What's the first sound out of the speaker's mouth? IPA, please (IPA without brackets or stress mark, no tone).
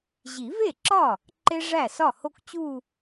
ʑ